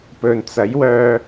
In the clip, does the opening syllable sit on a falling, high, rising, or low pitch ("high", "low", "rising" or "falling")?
low